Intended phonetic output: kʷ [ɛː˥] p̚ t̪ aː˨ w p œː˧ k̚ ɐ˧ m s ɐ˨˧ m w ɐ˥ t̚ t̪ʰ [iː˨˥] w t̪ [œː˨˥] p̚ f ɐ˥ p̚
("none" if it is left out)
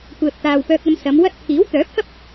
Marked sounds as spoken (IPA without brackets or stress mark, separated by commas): ɛː˨, iː˨˥, œː˨˥